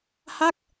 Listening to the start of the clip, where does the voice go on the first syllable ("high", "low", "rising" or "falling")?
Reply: falling